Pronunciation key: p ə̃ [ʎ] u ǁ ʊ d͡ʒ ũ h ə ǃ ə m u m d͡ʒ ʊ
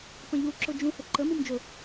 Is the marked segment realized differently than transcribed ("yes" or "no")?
no